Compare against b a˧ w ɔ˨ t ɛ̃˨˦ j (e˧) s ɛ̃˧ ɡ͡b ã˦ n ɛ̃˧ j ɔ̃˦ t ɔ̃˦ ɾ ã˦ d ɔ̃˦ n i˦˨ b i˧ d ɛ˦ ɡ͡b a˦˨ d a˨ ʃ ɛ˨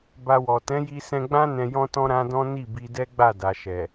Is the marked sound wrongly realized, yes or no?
yes